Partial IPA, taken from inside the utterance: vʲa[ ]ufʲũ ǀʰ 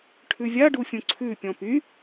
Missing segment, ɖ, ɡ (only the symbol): ɖ